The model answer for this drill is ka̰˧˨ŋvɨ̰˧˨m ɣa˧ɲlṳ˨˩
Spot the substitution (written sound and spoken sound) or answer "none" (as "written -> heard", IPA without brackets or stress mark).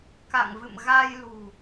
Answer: ɲ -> j